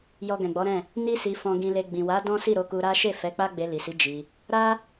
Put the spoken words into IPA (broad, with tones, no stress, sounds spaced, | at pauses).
j ɔ˧ ɡ ɛ̃˨ ɡ͡b ɔ˨˦ ɾ ɛ̃˦˨ | n i˦ s i˧ f ɔ̃˨ ɡ ĩ˨ l e˨ ɡ͡b ĩ˨ w a˨˦ d ɔ̃˦ s i˦˨ ɾ o˨˦ k u˧ ɾ a˦ ʃ e˦˨ f ɛ˨˦ k͡p a˦ ɡ͡b e˧ l i˨ s i˨˦ d͡ʒ i˧ | ɾ a˦